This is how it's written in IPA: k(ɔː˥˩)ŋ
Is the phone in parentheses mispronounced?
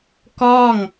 no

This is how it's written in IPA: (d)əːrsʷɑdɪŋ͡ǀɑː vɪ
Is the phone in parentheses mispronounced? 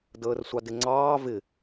no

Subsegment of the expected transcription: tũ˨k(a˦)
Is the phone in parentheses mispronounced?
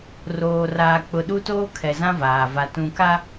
no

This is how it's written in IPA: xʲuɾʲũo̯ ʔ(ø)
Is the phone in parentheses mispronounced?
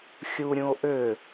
no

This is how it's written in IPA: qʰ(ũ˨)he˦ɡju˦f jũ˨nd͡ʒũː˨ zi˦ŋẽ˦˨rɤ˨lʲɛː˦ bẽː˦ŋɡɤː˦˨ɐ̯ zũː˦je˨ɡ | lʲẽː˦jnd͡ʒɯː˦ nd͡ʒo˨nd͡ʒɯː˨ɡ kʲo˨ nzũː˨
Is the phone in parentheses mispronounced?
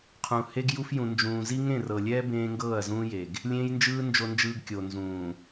no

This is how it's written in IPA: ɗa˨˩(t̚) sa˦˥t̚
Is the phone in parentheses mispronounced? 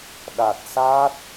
no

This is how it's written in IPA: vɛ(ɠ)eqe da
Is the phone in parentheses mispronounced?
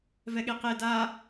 no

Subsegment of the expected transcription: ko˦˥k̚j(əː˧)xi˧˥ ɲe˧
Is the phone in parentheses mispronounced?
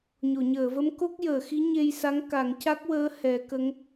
yes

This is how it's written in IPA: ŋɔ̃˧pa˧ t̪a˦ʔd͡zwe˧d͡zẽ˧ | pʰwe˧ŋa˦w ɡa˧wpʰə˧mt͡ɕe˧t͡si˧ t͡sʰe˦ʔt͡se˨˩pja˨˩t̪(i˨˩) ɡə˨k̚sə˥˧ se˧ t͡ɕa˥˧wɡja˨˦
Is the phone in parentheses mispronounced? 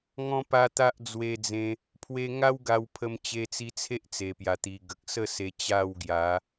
no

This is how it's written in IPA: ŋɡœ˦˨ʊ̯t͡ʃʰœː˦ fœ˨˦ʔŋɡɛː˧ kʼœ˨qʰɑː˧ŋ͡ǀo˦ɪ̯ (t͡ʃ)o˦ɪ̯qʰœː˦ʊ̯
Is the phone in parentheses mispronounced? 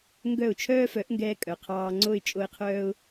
yes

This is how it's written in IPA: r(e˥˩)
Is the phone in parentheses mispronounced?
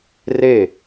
no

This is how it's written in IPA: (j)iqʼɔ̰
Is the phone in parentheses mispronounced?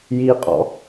no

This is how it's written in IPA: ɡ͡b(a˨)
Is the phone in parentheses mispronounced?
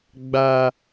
yes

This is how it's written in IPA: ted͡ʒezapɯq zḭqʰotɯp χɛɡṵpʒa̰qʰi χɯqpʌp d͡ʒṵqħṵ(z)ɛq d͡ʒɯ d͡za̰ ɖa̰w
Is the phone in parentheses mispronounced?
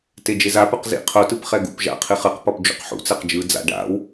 yes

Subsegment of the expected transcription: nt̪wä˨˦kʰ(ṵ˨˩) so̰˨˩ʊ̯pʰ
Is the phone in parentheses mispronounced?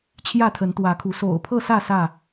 yes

